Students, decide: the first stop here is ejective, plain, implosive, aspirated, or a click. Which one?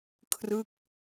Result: aspirated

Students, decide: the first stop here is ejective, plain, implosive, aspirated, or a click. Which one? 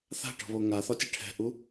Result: plain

